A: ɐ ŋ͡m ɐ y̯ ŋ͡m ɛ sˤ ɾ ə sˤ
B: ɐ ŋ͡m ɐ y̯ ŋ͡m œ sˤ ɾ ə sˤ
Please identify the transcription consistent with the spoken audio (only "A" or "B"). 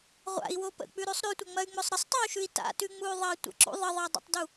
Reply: B